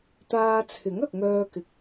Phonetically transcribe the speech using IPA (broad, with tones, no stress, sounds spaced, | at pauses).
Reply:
t̪ aː˧ t͡sʰ ɪ˨˥ ŋ ɐ˨ k̚ ŋ œː˧ k ɪ˨˥ k̚